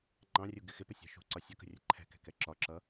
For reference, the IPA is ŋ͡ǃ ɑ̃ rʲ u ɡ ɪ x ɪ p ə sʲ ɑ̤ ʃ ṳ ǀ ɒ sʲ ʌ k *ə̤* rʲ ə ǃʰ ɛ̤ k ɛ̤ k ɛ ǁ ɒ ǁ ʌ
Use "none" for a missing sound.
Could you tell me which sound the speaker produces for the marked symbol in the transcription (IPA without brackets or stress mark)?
ə̤